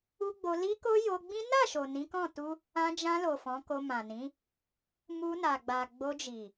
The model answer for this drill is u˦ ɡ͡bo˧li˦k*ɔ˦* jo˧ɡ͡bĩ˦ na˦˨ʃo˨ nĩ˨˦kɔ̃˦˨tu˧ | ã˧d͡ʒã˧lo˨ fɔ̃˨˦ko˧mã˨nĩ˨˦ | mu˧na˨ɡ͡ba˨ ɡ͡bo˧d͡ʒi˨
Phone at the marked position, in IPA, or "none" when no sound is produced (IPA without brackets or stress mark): o˦